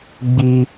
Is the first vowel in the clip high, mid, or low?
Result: high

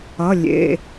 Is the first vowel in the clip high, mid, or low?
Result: mid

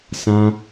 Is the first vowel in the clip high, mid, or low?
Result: low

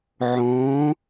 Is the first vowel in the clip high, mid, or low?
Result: mid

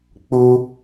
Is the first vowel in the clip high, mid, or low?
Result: high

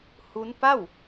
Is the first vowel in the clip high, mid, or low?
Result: high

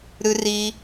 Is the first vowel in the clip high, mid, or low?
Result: high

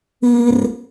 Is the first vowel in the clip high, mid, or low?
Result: high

